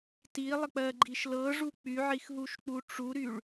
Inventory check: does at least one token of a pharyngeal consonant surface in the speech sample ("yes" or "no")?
yes